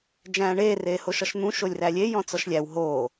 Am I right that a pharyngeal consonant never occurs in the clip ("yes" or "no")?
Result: yes